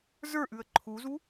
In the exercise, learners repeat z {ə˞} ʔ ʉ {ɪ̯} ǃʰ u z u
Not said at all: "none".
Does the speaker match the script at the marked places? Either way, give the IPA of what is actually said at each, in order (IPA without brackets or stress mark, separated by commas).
ə˞, ə̯